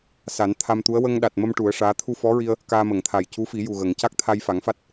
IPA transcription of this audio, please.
s a˨˩˦ n t̪ʰ a˧ m t̪ u˧˥ ə̯ w ə˧ ŋ ɗ a˨˩ t̚ m ə˧ m ʈ u˨˩˦ ə̯ ʂ aː˧˥ t̪ʰ u˧ f ɔ˧˥ ɹ i˧ ə̯ | k aː˧ m ə˨˩˨ ŋ t̪ʰ a˨˩ j c u˧˥ f i˨˩˦ j u˨˩ ɣ ə˨˩˨ ŋ c a˦˥ k̚ t̪ʰ a˧ j f a˨˩˦ ŋ f a˦˥ t̚

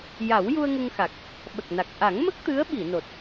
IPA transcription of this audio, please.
j a˨˩˦ w j u˧ ə̯ ŋ ə˧ ŋ x a˨˩ k̚ | ɓ ə˨˩ k̚ n a˨˩ k̚ ʔ a˨˩˦ ŋ m ə˦˥ k̚ t̪ ɨ˧˥ ə̯ ɓ i˨˩˨ n o˨˩ t̚

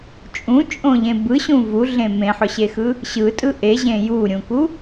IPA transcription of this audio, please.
t͡ʃʼ ũ t͡ʃʼ õ ʎ ẽ b ɯ ɕ ũ v u ɮ ẽ m ẽ ħ ʊ ɕ e x ɯ | ɕ ɯ tʼ ɯ ʔ e ʑ ẽ j u ɾʲ ũ k u

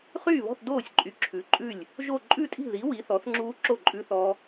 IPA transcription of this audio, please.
χ yː˥˨ β ɔ̤˥˨ θ d oː˥˨ sʲ ǃʼ y˨˥ ǁʰ ʉ˨˥ ǃʼ ʉ˥˨ lʲ | ʒ o˥˨ ǃʼ ʉ˥˨ tʼ i̤˥˨ ð i˨˥ w i˨˥ θ ɔ˨˥ θ ŋ͡ǁ uː˦˥ ǁ o˥˨ ǃʼ ʉ˦˥ θ ɔ˦˥

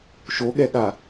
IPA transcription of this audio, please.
ʃ o ɠ ɛ ɠ a

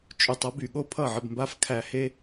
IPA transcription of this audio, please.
t͡ʃʼ y˨ tˤ ʌ˨˦ b y˨ ɠ o˦ pʰ ʌ˦˨ ʕ ə˧ b m b a˦ f kʰ æ˧ h e˦

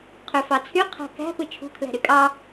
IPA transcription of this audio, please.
qʰ ø f ɑ t͡sʰ y qʰ æ̤ k æ̤ p ɯ t͡ʃʰ ṳ kʰ l æ̤ ɾ y kʼ ɑ

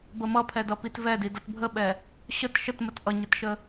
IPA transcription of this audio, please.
b ə m ʌ pʰ ɛ d ʌ p i t v ɛ d i d ʌ t bʱ ə ɓ ɛ | ɕ ə t ʃ ə t m ə t ʔ ʌ ɲ ə t ʃ ə

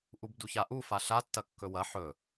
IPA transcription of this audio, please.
ʔ u b d u ç a ʔ u f a ɬ a tː ɐ kː ɵ w ɐ ħ ɵ

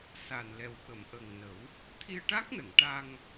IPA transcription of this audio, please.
s a˨˩ n l ɛ˨˩ w ɓ ə˨˩˨ m ʔ ə˨˩ ŋ n ə˨˩˦ w | t̪ʰ i˧ ə̯ ʈ a˦˥ k̚ n ə˨˩˨ ŋ ʈ a˧ ŋ

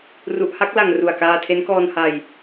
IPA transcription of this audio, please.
r u˨˩ ʔ h a˥˩ k̚ l a˨˩ ŋ r u˨˩ a̯ k aː˧ tʰ e˦˥ n k ɔː˧ n h a˧ j

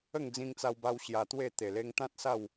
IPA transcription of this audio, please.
ə˥˧ ŋ d͡z ĩ˧ ŋ t͡s a˧ w b a˧ w ɕ j a˧ t̪ w e˥˧ t̪ e˨˩ l e˧ ŋ t̪ ã˦ t̚ s a˥˧ w

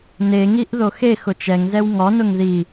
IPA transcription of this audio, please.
n e ŋ i ʔ ð o x e x ʊ t͡ʃ ɛ ŋ z ɛ w ŋ ɔ n ʊ ŋ ð i

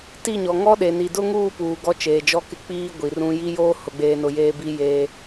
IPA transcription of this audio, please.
t i˦˨ ɲ ɔ˨ ŋ ɔ˦ ɗ e˨ n i˨ d ʊ˦ ŋ uː˦˨ p uː˨ ɡ ɔ˦ t͡ʃ eː˨ d͡ʒ ɔ˦ k ɪ˦ k͡p iː˦ ɡʷ i˨ r ũ˦ j i˦ j oː˦ h ʊ˨ ɡ͡b eː˨ n ʊ˨ j eː˦ b i˦ j eː˦

